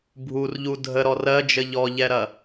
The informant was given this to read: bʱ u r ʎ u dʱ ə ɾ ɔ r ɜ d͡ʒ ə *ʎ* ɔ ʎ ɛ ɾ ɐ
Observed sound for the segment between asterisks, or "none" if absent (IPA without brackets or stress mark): ʎ